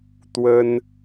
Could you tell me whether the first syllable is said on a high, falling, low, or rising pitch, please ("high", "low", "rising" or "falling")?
high